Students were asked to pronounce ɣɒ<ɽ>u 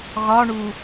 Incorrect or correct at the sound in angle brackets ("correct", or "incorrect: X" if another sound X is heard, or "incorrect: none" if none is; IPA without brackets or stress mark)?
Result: incorrect: ɳ